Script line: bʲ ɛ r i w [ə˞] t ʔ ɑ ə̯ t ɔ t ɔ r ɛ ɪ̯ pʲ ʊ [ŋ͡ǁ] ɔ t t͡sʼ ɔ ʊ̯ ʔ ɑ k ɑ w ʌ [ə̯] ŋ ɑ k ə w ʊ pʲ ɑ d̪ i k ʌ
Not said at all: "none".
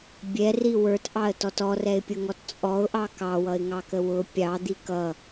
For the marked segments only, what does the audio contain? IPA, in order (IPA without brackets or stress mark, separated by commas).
ə˞, ŋ, ɪ̯